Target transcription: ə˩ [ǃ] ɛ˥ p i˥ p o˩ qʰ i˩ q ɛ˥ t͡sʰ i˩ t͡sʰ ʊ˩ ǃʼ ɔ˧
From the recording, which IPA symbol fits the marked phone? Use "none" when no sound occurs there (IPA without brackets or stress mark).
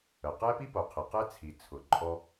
q